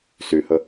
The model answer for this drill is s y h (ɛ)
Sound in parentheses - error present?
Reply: yes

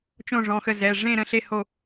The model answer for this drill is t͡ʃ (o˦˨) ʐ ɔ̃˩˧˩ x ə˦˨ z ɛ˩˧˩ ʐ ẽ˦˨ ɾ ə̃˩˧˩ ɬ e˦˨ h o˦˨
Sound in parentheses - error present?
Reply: yes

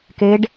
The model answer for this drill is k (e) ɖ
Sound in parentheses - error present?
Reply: no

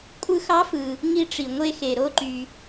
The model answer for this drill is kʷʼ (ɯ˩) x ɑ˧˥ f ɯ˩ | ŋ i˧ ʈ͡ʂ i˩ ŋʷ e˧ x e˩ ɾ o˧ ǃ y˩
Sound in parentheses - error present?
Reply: yes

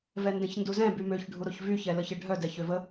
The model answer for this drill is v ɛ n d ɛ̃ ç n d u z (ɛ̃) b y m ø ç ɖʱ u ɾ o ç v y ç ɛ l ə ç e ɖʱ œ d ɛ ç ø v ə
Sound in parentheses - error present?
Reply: no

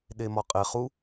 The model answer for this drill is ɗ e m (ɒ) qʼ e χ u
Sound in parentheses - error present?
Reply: no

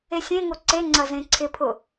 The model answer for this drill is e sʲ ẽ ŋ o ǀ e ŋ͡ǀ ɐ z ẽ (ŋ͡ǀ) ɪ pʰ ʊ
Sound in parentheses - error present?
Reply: yes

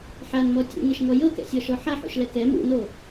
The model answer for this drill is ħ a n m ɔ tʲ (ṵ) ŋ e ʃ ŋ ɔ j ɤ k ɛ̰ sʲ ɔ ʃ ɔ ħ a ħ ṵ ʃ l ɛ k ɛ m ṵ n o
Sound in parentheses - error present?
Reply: no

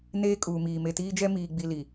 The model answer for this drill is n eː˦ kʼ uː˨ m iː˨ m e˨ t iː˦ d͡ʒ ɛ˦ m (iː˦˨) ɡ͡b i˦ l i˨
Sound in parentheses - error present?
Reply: yes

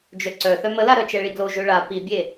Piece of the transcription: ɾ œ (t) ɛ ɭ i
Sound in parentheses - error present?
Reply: yes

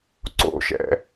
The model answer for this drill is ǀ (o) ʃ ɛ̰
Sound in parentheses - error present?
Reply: yes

